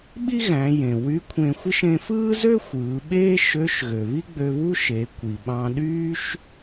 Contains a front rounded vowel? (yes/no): yes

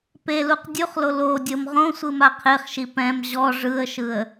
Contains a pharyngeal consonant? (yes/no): no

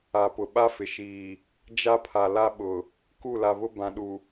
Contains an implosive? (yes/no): yes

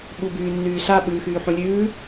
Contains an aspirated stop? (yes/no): no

